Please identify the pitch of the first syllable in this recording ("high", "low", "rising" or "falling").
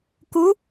rising